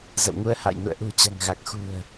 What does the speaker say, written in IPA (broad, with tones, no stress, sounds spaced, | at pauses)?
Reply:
z ə̰˧˨ w ŋ u˧ ə̯ h a̰˧˨ j n ṵ˧˨ ə̯ ʔ ṳ˨˩ t͡ɕ a̤˨˩ ŋ ɣ a˨˩ k̚ x ṳ˨˩ ə̯